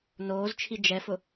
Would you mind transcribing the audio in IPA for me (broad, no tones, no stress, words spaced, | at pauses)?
noːzt͡ʃʰi d͡ʒɛfʊ